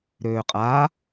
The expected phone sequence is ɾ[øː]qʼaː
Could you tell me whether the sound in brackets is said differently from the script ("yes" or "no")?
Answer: no